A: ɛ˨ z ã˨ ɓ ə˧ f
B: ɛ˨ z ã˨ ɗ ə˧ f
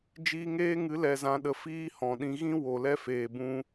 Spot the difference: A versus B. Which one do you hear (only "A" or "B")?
B